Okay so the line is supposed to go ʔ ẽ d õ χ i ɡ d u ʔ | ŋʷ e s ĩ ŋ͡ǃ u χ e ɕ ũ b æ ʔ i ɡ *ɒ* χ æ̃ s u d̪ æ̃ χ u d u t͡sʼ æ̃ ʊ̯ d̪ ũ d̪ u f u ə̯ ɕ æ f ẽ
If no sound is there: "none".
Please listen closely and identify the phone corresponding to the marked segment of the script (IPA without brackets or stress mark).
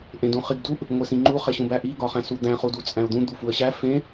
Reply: ɒ